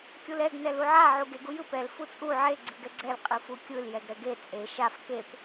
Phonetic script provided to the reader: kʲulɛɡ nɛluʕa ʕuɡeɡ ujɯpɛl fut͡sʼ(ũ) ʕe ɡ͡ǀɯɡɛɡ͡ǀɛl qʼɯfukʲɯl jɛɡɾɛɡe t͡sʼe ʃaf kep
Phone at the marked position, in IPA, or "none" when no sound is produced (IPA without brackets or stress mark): u